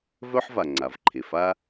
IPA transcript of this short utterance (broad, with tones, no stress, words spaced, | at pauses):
vœ˥ħva˩ ŋ͡ǀa˩vǃʰe˩fa˥